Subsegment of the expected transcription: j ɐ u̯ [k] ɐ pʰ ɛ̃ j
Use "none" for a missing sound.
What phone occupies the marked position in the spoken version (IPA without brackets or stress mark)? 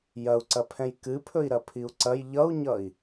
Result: ǀ